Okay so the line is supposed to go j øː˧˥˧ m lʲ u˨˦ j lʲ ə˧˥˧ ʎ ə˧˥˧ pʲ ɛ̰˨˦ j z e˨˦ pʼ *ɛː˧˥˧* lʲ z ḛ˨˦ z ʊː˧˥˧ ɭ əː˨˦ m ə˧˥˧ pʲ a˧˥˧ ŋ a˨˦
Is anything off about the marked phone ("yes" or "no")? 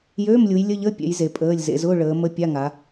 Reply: yes